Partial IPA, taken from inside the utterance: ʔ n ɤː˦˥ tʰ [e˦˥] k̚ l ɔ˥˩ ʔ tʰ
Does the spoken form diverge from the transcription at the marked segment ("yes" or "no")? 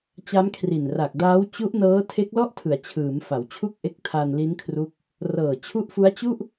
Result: no